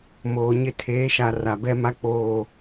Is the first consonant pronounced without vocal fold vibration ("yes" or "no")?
no